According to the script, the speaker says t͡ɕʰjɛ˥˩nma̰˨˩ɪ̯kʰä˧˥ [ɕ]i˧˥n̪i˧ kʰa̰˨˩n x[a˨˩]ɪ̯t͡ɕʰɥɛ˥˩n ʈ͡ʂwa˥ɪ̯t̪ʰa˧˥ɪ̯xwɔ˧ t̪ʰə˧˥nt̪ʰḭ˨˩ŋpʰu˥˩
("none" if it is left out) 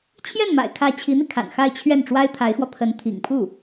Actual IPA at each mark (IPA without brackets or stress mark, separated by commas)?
t͡ɕʰ, a˥˧